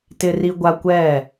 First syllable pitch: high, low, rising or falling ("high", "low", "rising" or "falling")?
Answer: high